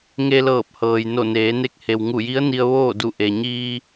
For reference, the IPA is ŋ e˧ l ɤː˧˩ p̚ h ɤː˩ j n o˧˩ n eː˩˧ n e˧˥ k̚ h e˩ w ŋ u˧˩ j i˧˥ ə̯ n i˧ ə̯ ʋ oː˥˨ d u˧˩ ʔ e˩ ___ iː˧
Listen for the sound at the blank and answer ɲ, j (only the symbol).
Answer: ɲ